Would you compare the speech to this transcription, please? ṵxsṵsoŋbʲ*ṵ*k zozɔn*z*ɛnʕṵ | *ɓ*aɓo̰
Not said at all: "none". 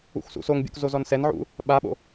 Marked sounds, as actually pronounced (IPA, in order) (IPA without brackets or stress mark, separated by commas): ṵ, s, ɓ